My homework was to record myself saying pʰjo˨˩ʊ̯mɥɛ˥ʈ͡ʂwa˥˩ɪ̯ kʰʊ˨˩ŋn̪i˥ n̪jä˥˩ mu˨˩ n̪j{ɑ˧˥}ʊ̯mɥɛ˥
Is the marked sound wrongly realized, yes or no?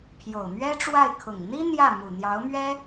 no